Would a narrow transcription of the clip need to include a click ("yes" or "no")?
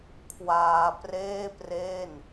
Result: no